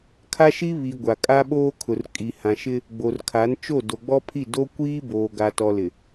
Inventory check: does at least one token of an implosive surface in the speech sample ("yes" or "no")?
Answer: yes